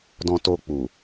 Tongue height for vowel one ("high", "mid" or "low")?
mid